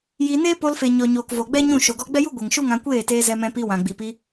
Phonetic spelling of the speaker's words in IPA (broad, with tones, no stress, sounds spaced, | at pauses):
j i˧ n eː˦ p o˧ l f e˨ ɲ ɔ˨ ɲ oː˨ k v o˨ ɡ͡b ɛ˦ ɲ ũ˦˨ ʃ o˨ ɡ ɔ˧ ɡ͡b ɛ˦ j u˦ ɡʷ ɛ˨ ŋ ʃ u˦ ŋ ã˧ kʷ eː˦˨ t eː˧ z ɛ˧ m ɛ̃˧ p i˧ w ã˨ ɡ͡b i˨ p i˧